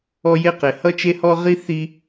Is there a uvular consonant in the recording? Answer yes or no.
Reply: yes